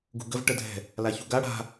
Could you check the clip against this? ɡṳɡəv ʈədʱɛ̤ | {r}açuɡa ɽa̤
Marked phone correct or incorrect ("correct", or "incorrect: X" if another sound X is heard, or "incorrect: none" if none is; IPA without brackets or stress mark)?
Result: incorrect: l